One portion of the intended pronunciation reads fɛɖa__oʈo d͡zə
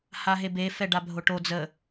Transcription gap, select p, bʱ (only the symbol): bʱ